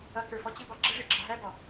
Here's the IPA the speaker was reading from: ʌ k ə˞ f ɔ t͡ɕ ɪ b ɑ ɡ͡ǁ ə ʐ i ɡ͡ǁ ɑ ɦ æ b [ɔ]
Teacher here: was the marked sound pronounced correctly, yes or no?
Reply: yes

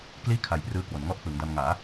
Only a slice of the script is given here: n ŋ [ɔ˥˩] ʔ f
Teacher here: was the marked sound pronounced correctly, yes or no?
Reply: yes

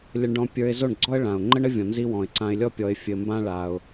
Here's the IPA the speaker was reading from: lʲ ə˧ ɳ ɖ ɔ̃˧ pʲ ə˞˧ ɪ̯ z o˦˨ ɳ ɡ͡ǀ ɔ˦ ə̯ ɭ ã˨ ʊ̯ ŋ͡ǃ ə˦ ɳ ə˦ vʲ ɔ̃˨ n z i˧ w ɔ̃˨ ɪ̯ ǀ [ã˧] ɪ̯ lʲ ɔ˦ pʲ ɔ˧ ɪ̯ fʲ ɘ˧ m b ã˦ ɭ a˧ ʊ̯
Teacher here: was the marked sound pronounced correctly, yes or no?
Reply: yes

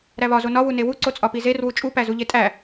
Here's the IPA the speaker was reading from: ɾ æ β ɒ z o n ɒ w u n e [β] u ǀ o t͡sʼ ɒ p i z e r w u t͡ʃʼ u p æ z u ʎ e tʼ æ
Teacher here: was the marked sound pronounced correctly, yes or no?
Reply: no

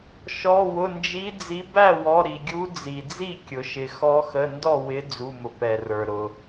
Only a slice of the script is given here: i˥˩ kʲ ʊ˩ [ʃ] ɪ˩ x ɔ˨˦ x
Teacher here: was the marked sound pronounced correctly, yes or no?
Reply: yes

